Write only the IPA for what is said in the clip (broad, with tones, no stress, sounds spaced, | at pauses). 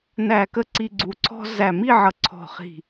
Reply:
n æ˧˩ k ə˥˧ ǀ i˧ ɡ͡ǀ u˧˩ ǀʰ ɔ̤˥ z æ˧˩ m i˥˧ ʕ ʌ˧˩ ǀʰ ɔ̤˧˩ χ i̤˧˩